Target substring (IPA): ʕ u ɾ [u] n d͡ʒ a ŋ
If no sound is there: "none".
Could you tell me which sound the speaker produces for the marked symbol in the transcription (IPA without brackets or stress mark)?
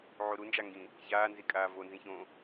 u